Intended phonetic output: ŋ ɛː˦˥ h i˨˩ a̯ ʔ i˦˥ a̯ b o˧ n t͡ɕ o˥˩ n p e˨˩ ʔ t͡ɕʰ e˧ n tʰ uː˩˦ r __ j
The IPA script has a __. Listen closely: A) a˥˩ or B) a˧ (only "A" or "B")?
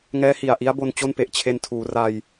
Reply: B